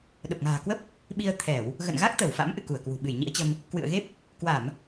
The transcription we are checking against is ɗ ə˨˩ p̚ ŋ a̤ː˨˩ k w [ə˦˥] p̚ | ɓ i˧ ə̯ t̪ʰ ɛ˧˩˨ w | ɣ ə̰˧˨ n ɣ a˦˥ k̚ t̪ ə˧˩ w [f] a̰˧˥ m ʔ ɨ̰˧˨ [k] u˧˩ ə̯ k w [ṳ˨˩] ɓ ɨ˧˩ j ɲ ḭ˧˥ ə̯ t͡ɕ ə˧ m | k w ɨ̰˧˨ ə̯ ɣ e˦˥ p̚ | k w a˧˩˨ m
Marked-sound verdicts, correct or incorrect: correct, correct, correct, correct

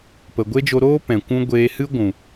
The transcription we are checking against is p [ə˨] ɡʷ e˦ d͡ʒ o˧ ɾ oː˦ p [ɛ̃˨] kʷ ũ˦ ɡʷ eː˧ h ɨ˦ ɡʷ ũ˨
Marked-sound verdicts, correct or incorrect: correct, correct

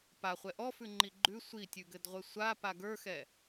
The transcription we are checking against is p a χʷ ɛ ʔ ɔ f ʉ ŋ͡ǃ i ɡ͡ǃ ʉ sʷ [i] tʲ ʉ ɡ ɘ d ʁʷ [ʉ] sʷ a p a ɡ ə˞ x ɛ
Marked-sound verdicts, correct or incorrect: correct, incorrect: ɘ

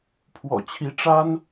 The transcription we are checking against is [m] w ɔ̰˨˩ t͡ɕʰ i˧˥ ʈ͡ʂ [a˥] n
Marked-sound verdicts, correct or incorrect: incorrect: pʰ, correct

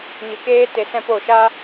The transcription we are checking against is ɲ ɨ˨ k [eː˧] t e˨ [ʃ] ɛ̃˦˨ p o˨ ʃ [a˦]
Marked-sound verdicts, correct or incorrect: incorrect: eː˦, incorrect: s, correct

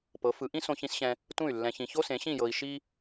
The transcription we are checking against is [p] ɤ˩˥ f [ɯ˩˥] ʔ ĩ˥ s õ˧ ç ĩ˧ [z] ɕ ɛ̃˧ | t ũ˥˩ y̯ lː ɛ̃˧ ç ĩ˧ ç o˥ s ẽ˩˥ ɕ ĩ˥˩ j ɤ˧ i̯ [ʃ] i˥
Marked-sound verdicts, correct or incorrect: correct, correct, incorrect: s, correct

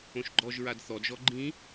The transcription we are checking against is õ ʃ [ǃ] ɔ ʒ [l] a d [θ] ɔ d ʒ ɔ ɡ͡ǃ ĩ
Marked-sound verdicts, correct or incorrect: incorrect: ɡ͡ǃ, incorrect: ɹ, correct

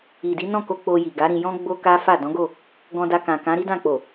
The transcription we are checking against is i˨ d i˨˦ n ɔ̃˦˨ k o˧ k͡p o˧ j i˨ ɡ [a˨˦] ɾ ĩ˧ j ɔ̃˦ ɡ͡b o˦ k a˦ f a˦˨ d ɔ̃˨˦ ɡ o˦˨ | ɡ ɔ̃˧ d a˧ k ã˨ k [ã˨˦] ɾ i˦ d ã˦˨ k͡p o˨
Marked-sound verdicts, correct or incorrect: correct, correct

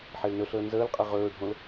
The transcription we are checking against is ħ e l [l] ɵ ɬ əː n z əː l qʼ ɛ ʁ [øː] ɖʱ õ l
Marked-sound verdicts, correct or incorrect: incorrect: n, incorrect: ɵː

